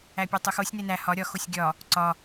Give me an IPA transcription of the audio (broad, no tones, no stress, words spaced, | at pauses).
æpʲotˤuxosʲ nenæ hɒ ɾʲɒ xosʲɡʲɒ | ǀɒ